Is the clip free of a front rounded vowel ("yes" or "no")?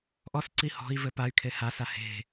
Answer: no